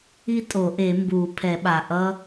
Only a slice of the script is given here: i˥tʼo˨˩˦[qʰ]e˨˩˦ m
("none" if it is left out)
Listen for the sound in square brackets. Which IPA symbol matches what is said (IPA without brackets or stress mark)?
ʔ